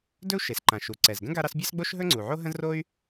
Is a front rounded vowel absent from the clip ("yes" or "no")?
no